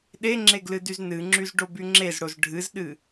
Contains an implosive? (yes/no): yes